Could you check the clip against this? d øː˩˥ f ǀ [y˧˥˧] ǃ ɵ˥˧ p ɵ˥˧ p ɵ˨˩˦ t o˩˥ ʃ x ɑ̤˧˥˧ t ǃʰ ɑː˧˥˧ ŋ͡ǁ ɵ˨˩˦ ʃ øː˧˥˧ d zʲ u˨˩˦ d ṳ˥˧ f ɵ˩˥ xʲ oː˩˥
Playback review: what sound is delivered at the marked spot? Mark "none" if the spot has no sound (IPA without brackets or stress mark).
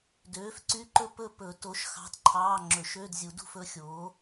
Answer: y˧˥˧